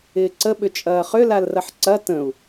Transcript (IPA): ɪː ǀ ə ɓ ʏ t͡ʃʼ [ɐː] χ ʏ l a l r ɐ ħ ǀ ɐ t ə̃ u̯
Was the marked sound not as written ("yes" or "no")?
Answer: no